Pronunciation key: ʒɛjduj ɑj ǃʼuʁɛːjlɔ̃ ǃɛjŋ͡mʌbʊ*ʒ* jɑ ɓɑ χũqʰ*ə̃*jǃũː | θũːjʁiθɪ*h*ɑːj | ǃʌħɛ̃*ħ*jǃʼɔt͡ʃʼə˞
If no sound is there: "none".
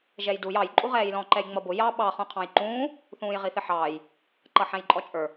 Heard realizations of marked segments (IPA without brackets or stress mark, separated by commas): none, ɑ̃, ħ, none